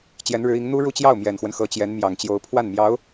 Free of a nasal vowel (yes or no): yes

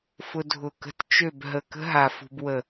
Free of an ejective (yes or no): yes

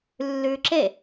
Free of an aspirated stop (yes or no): yes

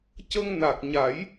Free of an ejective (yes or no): yes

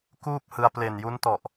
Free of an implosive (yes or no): yes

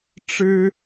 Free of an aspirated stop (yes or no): yes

